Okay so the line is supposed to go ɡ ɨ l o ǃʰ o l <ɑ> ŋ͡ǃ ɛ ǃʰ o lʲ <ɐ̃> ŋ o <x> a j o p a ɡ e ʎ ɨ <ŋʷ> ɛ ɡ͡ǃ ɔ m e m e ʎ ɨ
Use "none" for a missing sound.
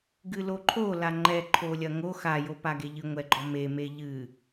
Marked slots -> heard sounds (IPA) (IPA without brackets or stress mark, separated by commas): a, ɐ, x, ŋʷ